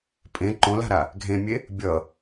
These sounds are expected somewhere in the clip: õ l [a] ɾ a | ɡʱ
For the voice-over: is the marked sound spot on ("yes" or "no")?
no